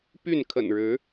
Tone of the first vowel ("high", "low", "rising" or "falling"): falling